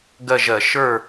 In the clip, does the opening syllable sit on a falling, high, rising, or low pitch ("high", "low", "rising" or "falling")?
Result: falling